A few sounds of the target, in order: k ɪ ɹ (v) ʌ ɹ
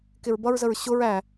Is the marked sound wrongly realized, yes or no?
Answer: yes